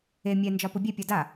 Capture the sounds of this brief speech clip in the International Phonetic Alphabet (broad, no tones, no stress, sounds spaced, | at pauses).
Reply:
e mʲ ɛ n d͡ʒ ɒ p ʊ bʲ e pʲ ɒ d a